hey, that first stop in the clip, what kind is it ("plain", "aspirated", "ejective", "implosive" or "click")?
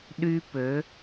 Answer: implosive